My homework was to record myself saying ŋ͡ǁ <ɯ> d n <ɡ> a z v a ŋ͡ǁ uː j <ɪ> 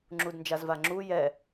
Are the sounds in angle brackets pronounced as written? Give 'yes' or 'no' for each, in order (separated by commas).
no, no, no